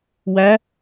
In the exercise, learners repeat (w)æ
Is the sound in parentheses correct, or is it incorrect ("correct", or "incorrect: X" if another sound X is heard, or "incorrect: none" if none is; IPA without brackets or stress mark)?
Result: correct